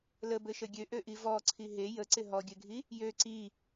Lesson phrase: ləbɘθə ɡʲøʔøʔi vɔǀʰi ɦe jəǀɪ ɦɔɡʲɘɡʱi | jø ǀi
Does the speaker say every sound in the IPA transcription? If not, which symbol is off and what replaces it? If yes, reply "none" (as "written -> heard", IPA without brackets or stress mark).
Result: θ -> ʃ